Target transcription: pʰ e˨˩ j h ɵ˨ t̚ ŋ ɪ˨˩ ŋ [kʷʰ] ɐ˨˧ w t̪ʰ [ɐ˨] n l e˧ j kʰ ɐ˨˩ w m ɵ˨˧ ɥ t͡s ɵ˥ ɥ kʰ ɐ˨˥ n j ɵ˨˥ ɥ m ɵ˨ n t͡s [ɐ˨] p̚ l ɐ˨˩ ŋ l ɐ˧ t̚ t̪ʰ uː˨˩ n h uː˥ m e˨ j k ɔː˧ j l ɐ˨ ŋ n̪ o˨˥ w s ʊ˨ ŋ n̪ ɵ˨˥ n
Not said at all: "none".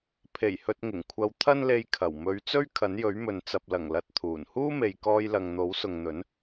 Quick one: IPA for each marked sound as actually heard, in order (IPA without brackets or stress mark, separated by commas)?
kʷʰ, ɐ˥, ɐ˨